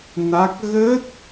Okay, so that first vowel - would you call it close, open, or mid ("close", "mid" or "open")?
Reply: open